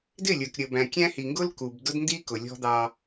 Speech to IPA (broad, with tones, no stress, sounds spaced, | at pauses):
d ɪ˦˨ lʲ ə˞˨ k ɾʲ ə˨ b æ̃˨ kʲ æ̃˦ h i˨ ŋ ɡ ʊ˦ l k u˨ b d ʊ˦ d n d i˦ k ʊ˨ lʲ ɔ̤˦ d̪ ɑ˦